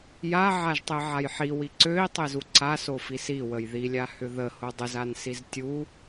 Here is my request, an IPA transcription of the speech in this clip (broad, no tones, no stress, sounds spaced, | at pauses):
j a ʕ a ʒ tˤ e ʕ a j ħ i w i ǀ ø i̯ tˤ e z u ǀ a s o f i s i w ə j ð i lʲ a h ʏ ð ə h o dˤ ə z a n s i z tʲ u